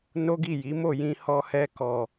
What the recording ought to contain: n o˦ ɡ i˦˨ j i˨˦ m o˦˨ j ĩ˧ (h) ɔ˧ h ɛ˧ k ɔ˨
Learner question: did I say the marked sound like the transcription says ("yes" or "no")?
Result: yes